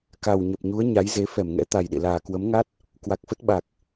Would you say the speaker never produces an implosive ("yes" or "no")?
no